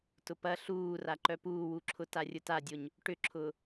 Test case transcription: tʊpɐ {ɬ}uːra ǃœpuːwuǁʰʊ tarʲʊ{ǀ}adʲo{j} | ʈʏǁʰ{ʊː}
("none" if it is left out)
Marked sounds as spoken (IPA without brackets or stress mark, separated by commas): ɬ, t, ɲ, ʊː